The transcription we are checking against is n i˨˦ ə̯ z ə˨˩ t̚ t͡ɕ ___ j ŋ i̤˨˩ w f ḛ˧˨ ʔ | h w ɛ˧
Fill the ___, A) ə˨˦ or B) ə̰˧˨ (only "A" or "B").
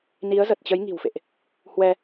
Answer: A